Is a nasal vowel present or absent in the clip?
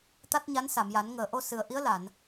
absent